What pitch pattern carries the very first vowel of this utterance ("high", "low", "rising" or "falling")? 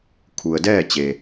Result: low